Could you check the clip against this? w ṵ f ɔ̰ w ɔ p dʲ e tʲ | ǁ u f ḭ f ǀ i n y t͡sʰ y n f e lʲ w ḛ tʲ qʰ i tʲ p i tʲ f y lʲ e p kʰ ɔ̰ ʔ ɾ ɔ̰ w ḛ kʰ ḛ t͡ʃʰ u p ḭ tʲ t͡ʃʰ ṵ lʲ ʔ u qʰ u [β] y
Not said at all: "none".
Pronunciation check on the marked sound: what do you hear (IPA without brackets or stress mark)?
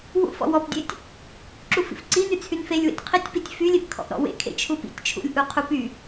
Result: p